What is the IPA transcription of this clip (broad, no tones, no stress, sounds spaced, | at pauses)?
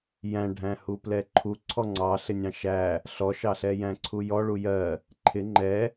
j æ̃ ɖʱ æ̃ h u p l ɛ ǃʰ u ǀʰ ɔ ŋ͡ǀ ɑ ɬ ɪ nʲ ɑ̃ ʃ æ | ɬ ɔ ʃ ɑ ɬ ɛ j æ̃ ǀʰ u j ɔ ɭ u j ɜ | ǃʰ ɪ ŋ͡ǃ ɛ